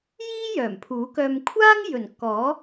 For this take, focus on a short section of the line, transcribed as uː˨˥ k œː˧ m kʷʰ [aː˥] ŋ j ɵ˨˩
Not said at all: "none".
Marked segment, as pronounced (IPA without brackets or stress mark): aː˥